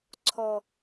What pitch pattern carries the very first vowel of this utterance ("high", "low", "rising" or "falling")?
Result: low